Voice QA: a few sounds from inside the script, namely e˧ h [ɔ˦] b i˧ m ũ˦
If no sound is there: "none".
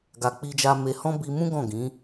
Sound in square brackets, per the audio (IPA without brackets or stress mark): ɔ̃˦